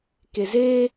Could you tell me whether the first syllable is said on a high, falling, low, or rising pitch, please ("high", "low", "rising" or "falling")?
low